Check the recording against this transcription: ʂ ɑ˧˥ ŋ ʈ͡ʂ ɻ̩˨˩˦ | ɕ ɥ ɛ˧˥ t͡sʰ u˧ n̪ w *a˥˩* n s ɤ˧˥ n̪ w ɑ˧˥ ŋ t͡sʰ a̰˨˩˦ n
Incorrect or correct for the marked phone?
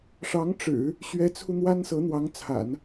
incorrect: a˥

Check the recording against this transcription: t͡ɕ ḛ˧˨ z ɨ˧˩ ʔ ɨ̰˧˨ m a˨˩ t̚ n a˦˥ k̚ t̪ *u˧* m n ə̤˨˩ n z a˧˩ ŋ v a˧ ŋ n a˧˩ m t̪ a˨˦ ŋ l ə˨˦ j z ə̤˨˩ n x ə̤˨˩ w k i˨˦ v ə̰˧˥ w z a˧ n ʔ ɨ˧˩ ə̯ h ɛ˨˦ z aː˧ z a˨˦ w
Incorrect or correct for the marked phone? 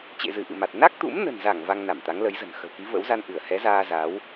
incorrect: ṵ˧˥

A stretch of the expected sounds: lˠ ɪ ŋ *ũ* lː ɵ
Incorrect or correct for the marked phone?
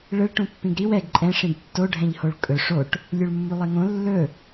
incorrect: õ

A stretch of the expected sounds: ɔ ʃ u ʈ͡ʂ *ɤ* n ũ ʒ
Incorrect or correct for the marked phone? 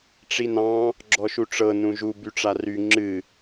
correct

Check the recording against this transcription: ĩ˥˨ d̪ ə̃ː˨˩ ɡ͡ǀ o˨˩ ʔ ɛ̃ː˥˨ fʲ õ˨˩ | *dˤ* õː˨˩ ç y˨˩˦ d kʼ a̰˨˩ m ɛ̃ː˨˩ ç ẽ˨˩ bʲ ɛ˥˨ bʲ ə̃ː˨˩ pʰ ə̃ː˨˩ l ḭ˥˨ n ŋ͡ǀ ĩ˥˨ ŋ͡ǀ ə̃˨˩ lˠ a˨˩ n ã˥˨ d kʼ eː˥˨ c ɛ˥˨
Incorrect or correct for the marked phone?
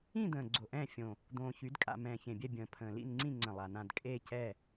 incorrect: d̪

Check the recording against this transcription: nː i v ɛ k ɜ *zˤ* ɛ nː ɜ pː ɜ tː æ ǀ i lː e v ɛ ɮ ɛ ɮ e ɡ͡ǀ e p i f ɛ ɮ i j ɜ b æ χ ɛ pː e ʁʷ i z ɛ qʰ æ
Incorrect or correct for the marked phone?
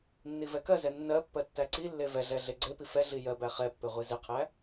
incorrect: z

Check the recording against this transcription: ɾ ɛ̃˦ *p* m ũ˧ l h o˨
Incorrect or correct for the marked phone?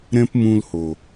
correct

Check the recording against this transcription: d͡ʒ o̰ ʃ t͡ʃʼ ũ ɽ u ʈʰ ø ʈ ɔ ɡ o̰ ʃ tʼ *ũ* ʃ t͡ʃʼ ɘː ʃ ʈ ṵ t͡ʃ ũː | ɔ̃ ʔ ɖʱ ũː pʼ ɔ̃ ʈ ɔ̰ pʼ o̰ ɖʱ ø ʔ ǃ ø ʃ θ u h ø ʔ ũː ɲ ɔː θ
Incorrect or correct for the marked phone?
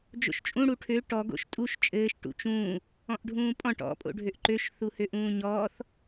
incorrect: u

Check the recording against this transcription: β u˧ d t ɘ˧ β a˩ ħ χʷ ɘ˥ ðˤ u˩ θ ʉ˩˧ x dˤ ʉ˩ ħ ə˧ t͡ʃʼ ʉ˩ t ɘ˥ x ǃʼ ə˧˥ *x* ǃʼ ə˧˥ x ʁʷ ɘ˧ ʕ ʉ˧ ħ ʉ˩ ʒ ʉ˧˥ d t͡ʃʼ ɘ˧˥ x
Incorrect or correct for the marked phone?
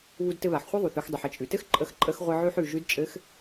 correct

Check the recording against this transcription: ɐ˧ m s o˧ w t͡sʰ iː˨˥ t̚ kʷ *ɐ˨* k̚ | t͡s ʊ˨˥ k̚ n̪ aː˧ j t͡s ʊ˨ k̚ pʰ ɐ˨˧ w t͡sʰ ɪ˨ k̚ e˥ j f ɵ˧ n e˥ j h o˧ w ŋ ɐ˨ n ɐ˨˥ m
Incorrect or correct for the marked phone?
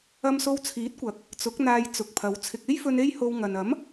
correct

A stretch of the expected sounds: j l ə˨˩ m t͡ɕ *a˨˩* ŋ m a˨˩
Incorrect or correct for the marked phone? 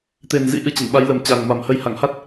correct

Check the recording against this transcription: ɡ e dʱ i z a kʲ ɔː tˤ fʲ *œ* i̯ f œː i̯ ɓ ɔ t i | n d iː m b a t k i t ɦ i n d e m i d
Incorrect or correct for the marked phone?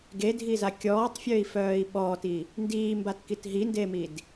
correct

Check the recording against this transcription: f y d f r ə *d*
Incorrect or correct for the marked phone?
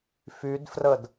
correct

